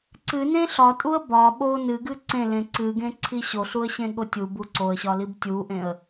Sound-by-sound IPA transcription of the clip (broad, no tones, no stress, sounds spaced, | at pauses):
ǀ ɨ n ẽ ɬ ɒ tʼ u ə̯ b ɒ ɓ o n ɨ ɡ ɨ ǀ ẽ l ẽ ǀ ɨ ɡ ẽ ǀʰ i ɕ o ɬ u ə̯ ɕ ẽ ɠ o tʲ u b u ǀ o ə̯ ɕ ɒ l i b tʲ u ʔ ẽ ə̯